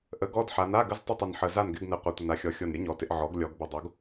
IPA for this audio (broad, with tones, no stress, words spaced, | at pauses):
ʔə˩˥ ɡɔ˧˥˧dħa˩˧n a˧˥˧ɡə˧˥˧z tˤə˥˨tˤə˨˩nħə˨˩ za˥˨nɡɪ˧˥˧ɡnɪ˨˩ qʷa˨˩tʷɪ˨˩na˩˥xʲɔ˩˥ xʲo˨˩nɾʲə˩˥ɲɔ˩˧tɪ˩˧ʔ ʕɔ˩˥ɡ lʲɔ˩˧ɡ bə˨˩dˤo˩˥ɡ